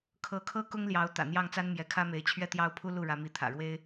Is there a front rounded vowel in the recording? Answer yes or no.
no